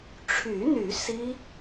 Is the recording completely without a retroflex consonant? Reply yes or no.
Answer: no